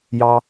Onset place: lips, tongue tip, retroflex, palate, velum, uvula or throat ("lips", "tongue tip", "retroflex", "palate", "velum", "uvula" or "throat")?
palate